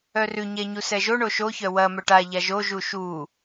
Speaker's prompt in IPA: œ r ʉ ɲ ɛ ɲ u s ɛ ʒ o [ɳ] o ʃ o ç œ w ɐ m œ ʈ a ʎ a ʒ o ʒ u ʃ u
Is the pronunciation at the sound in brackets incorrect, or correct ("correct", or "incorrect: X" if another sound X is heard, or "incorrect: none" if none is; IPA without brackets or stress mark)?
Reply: correct